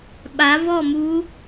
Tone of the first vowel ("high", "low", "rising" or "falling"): rising